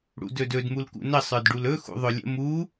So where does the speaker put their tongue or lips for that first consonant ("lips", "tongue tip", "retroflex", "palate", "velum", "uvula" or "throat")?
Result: retroflex